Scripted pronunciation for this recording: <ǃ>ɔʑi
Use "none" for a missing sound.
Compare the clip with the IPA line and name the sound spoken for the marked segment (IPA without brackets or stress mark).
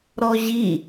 ɾ